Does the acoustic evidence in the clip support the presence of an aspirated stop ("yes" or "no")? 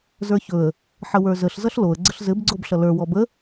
no